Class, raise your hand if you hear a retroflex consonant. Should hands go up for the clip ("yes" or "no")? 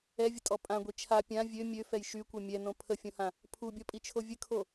no